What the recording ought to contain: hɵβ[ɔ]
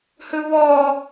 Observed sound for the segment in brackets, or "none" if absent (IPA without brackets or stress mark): ɔ